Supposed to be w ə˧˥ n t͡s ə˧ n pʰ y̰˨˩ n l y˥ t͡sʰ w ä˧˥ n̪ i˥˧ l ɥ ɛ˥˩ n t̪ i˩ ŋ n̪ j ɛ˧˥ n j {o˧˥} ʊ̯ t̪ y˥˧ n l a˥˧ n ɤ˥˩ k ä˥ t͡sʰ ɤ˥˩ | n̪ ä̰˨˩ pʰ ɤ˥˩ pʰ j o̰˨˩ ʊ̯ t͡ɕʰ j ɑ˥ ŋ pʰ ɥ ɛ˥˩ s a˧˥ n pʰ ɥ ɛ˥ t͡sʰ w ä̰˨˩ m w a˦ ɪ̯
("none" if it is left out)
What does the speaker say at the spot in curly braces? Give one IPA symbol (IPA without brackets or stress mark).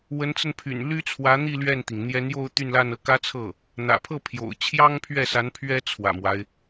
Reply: o˥˧